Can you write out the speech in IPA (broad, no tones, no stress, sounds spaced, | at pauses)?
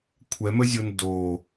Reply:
kʷʰ ɛ m ə zʲ o n d o